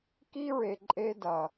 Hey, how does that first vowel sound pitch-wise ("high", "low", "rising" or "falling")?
high